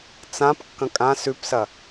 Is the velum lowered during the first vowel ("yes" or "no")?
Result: yes